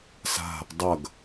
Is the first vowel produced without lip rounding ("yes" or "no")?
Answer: yes